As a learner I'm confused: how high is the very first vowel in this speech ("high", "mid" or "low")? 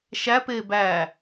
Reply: low